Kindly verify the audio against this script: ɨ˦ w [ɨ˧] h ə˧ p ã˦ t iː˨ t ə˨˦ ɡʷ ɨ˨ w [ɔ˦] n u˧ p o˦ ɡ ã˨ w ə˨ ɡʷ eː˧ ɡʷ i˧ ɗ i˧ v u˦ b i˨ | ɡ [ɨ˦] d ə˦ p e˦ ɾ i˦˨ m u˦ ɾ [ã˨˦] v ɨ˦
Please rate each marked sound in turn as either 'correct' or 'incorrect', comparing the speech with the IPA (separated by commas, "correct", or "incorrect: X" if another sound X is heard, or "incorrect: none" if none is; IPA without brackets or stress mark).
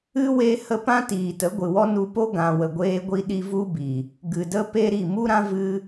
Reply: incorrect: e˧, correct, incorrect: ɨ˨, incorrect: ã˦